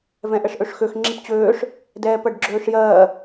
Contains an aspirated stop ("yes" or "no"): no